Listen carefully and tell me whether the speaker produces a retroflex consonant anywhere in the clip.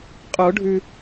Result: yes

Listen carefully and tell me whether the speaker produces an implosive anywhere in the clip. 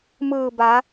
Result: no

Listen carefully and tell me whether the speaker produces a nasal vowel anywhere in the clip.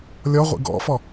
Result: no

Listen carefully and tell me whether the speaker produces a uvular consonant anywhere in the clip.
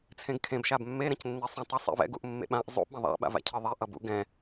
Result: no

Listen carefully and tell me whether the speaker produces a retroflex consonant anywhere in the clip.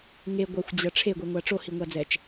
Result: yes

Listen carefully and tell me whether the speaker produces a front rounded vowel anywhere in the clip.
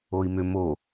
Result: yes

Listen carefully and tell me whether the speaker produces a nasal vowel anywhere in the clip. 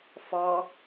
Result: no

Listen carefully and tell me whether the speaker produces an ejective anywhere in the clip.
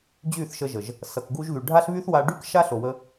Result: no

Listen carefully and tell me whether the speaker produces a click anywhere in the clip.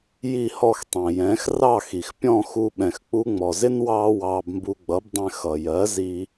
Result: no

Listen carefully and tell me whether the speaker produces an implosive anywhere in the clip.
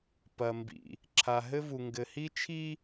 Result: no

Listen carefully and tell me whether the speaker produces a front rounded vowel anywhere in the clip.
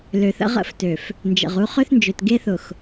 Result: yes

